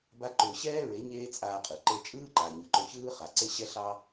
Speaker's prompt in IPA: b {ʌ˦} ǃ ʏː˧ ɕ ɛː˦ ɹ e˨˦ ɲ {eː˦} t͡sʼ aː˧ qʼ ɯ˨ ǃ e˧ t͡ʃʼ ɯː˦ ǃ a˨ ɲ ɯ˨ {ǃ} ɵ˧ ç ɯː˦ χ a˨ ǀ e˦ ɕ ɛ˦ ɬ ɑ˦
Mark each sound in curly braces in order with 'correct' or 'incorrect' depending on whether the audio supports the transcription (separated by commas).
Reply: incorrect, correct, correct